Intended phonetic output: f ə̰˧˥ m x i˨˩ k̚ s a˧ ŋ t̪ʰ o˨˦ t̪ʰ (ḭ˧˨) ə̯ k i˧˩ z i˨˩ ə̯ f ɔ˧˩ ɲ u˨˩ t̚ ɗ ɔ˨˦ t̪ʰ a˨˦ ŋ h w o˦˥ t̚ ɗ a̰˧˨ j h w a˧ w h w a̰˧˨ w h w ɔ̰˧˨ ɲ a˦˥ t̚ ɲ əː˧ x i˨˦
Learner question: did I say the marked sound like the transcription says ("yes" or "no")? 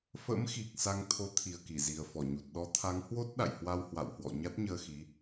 no